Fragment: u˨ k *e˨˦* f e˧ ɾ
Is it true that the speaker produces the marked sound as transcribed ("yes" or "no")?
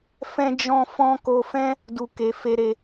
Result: no